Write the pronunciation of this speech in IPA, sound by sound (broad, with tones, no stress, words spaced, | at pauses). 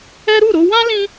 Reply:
ɛ˦ ɾu˦˨ɾo˧wã˦ lĩ˦